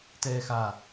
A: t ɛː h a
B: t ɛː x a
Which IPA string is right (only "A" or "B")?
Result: B